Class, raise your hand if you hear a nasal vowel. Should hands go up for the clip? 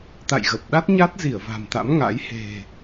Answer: no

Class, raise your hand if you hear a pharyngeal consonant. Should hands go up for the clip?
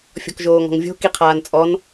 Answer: no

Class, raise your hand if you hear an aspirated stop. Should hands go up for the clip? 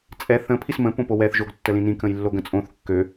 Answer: yes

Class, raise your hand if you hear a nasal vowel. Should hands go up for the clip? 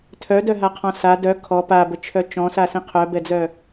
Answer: yes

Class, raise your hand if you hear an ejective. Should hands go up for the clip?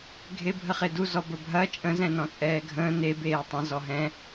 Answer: yes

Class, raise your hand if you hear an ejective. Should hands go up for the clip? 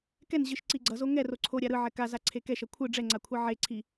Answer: no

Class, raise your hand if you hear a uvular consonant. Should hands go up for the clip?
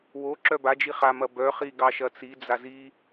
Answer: yes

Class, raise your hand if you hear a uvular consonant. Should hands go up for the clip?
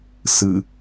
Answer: no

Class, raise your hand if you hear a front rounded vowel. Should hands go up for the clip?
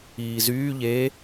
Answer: yes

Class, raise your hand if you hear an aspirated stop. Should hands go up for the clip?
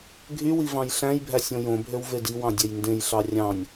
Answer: no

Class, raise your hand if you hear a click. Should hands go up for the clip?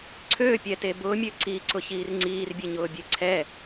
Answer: yes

